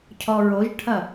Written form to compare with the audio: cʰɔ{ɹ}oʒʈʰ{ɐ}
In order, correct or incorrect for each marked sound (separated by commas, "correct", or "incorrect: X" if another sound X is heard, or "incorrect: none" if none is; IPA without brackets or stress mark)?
correct, correct